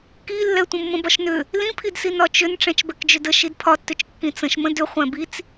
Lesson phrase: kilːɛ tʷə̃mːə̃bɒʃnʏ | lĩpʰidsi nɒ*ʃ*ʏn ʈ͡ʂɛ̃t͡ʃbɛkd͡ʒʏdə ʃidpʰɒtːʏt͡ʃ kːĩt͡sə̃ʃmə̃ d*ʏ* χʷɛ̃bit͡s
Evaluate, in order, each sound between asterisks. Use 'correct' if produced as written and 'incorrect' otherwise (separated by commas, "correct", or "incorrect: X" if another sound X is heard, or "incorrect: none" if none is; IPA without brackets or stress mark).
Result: incorrect: t͡ʃ, correct